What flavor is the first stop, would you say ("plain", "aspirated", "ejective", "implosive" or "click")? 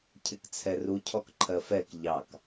aspirated